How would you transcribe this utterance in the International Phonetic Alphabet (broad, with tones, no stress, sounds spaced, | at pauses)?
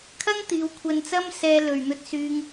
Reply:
kʰ ɐ˥ ŋ t̪ iː˨˧ w kʷʰ ɐ˧ n t͡s ɐ˥ m s ɛː˧ l ɵ˨ ɥ n̪ ɵ˧ t̚ s yː˧ ŋ